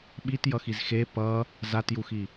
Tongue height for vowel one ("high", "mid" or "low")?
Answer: high